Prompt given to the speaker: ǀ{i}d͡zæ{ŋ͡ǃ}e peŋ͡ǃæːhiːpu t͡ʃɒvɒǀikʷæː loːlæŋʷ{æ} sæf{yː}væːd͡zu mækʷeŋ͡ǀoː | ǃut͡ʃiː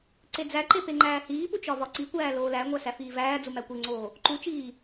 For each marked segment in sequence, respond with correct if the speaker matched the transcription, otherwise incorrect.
incorrect, incorrect, correct, incorrect

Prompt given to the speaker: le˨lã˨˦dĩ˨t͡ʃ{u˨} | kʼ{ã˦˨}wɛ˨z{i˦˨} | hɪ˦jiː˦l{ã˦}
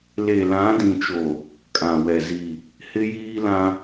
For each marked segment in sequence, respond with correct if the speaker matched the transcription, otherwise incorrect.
incorrect, incorrect, correct, correct

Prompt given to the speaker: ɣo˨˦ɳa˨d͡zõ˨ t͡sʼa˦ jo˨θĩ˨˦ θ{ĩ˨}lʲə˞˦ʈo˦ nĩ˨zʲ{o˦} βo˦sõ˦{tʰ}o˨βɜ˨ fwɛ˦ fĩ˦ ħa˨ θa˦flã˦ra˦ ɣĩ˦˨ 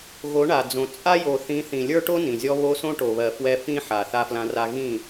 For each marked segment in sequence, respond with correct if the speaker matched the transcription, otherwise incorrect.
correct, incorrect, incorrect

